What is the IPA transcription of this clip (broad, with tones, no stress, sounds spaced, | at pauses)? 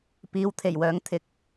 p iː˨˧ w t̪ʰ e˨˩ j w œː˨˥ ŋ t̪ʰ ɪ˨˥ k̚